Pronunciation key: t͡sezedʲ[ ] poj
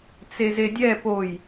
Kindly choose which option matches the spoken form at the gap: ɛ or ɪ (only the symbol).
ɛ